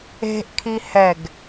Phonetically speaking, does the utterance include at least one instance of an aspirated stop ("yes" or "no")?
yes